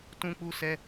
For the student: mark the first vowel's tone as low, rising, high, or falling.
high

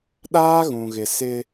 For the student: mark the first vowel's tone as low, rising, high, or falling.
high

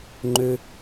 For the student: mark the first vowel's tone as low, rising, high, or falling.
low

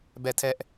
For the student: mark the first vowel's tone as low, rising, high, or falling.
falling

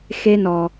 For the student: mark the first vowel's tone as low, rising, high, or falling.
high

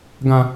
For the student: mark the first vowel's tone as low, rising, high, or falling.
high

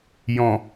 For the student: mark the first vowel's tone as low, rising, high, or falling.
low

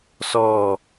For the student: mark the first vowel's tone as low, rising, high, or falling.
falling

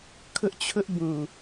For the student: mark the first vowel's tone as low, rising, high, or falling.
high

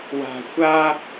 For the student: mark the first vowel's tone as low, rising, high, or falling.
low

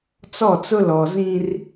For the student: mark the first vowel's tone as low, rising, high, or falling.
falling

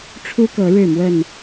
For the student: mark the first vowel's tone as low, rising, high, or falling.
high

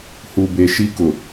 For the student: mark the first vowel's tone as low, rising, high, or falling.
low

